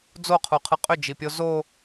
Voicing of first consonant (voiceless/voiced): voiced